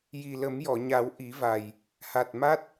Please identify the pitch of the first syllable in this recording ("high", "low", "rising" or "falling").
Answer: low